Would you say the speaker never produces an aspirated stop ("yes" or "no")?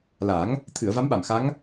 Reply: no